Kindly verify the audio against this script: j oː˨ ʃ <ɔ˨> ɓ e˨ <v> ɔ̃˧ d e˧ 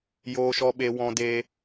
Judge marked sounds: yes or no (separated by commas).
yes, no